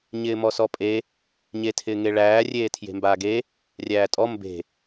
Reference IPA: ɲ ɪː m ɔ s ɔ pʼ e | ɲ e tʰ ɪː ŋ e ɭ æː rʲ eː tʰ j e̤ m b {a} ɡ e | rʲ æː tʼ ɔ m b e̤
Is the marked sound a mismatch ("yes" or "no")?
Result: yes